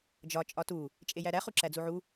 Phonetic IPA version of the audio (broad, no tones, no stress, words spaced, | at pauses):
d͡ʒɒ t͡ʃʼɒtu | t͡ʃʼejæɾæ χuǁæd͡zuʕu